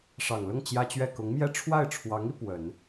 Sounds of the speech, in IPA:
ʂ ɑ˨˩ ŋ l ʊ˥˩ ŋ t͡ɕ j ä˥ t͡ɕ ɥ ɛ˥˩ k ʊ˧˥ ŋ m j ɛ˥˧ ʈ͡ʂʰ w a˥˩ ɪ̯ ʈ͡ʂʰ w ɑ˧˥ ŋ i˧ p w ə˨˩˦ n

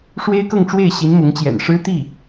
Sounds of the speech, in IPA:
ʂ w e˥ ɪ̯ k ɤ˥˧ ŋ ʈ͡ʂ w e˥˩ ɪ̯ ɕ i˧˥ n m ʊ˧˥ ŋ t͡ɕ j ɛ̰˨˩ n ʂ ɻ̩˥ t̪ i˥˩

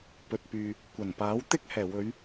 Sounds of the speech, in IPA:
p ɵ˨ t̚ p yː˨ | kʷ ɐ˨˩ n p aː˨˥ w t̪ ɪ˥ k̚ h ɛː˨˩ w ɵ˨˧ ɥ

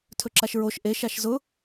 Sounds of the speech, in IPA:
tʰ ɵ ǁ a ʃ ɹ o ʃ ʔ e ʃ a ʃ z ʊ

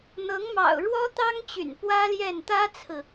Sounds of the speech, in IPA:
n̪ ɤ˧˥ ŋ m ɑ̰˨˩ ʊ̯ ɻ w ɔ˥ t̪ ɑ˥ ŋ t͡ɕ y̰˨˩ n p w ä˥ l j ɛ˥˩ n t̪ ä˥ t͡sʰ ɹ̩˨

